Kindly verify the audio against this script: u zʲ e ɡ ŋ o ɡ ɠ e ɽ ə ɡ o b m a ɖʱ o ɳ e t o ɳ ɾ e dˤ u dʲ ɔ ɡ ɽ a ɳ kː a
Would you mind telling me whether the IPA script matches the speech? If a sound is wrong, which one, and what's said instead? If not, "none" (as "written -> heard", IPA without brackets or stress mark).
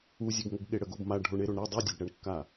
t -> ɾ